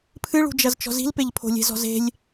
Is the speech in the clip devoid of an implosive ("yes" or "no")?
yes